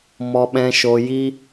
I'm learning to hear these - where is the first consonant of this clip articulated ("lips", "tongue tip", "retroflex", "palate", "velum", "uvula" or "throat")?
lips